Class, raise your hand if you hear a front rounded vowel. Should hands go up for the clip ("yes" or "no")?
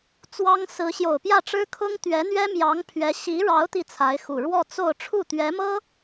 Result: no